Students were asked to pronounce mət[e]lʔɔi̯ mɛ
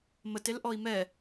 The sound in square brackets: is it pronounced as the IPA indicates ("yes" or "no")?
yes